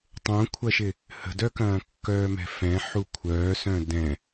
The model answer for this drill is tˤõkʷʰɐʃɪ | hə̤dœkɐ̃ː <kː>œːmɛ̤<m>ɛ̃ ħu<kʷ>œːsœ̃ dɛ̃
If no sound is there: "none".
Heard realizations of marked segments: kː, f, kʷʰ

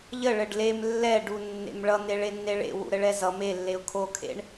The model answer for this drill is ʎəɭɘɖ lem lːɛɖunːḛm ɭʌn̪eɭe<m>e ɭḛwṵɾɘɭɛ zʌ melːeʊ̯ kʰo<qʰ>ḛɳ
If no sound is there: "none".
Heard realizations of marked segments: nː, kʰ

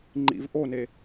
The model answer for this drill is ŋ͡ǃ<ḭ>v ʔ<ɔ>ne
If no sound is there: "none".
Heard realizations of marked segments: ḭ, o

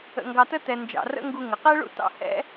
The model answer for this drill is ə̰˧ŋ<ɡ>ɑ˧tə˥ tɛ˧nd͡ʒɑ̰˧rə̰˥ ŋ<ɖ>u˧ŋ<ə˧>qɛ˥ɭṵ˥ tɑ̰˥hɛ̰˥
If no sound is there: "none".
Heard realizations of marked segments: ɡ, ɡ, ə˩

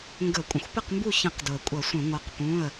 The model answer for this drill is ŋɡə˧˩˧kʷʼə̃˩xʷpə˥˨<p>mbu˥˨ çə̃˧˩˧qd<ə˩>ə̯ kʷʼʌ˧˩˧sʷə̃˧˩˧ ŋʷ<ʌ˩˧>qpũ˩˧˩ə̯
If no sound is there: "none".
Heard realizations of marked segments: q, ʊ˩, ʌ˩˧

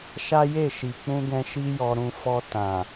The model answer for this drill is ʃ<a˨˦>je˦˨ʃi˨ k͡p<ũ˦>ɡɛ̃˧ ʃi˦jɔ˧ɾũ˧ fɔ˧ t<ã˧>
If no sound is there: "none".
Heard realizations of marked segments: a˦, ũ˧, ã˨

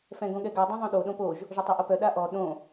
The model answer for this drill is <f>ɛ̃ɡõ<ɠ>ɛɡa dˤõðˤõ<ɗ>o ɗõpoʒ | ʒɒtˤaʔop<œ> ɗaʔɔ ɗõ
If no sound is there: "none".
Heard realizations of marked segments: f, ɠ, ɗ, œ

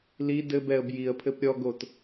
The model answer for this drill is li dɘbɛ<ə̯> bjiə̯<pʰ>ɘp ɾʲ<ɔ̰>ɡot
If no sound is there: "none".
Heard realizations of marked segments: ə̯, pʰ, ɔ

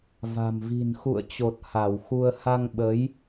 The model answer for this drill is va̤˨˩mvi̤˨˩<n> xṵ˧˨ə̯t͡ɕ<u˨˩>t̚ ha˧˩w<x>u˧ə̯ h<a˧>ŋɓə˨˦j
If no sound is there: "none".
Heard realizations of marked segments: n, o˨˩, x, a˧

